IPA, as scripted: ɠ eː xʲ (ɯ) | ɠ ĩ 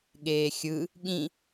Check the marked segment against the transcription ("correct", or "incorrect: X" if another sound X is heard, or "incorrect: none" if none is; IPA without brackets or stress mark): correct